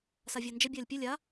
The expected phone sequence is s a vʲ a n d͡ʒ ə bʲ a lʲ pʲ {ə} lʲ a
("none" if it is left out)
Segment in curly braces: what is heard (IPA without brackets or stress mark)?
ə